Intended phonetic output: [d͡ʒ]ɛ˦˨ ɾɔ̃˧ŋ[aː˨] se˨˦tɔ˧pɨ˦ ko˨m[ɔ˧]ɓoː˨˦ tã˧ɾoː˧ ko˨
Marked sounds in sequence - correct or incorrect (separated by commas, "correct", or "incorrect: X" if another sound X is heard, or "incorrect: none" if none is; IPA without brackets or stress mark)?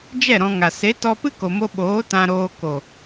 correct, incorrect: a˨, incorrect: o˧